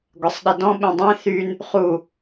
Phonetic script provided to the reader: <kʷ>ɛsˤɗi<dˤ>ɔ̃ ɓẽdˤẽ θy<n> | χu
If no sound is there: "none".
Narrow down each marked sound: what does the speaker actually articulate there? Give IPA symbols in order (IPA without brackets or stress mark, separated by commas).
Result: ɡʷ, d, n